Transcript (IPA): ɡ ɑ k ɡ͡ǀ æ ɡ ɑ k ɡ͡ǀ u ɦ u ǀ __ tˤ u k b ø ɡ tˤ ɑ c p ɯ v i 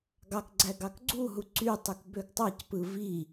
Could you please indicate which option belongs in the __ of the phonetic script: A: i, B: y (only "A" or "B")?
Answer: B